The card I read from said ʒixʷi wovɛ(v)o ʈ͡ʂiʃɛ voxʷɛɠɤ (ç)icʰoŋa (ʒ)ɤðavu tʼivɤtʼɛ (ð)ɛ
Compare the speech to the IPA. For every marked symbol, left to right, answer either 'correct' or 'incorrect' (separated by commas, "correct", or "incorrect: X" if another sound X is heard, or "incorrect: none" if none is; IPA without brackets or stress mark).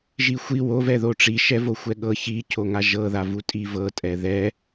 incorrect: ð, correct, correct, correct